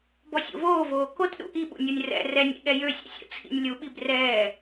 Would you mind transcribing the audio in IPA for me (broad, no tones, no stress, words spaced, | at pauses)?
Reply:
bɔsʲo̰voːvoː kotɗṵ ʔiɓṵnʲonʲ rɛ̰ rɛnʲḭɠɛ jøsʲɛ̰sʲo̰ t͡sʰḭnʲlʲuɓib rɛː